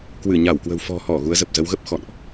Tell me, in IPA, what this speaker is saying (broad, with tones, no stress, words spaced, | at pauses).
kwɨ˧˩ɲa˧˩wkwə̤˨˩w fɔ̤˨˩hɔ˧˩ ɣu˨˦ə̯zə˨˩p̚ zə˨˦wɣə˦˥p̚ xɔ̰˧˨nʔ